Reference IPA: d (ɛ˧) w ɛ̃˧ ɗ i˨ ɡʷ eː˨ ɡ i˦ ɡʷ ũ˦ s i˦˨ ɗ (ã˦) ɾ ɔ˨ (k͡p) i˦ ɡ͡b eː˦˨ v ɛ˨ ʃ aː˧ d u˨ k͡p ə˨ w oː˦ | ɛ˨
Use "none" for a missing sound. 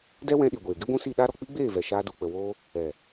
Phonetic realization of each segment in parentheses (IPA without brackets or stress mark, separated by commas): ɛ˦, a˦, k͡p